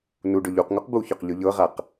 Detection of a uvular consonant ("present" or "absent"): present